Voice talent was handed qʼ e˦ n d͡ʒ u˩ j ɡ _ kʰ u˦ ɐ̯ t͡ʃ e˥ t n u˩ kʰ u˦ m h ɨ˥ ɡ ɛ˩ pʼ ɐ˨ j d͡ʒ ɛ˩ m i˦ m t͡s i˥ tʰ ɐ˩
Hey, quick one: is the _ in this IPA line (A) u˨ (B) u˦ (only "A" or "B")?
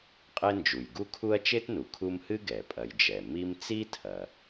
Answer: B